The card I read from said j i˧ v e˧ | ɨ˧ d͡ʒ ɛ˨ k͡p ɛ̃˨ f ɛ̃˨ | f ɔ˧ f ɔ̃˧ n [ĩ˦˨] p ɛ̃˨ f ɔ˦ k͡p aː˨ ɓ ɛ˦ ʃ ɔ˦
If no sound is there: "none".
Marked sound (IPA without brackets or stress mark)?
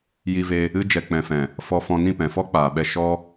ĩ˦˨